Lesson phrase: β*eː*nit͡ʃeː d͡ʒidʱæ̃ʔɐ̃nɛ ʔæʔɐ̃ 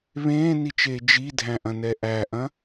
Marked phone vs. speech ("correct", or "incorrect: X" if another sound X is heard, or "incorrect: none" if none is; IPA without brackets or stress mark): incorrect: ẽː